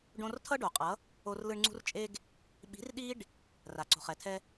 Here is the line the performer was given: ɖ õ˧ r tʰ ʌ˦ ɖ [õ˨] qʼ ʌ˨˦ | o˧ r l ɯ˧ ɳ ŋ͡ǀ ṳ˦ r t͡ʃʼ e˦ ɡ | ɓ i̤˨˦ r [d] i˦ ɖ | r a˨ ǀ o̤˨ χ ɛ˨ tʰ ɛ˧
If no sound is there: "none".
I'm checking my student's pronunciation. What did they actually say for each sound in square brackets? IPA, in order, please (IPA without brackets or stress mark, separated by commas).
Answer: o˨, ɗ